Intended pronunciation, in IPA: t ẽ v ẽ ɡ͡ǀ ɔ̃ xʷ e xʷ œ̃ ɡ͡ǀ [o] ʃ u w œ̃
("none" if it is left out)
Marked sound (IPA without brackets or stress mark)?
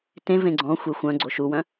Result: o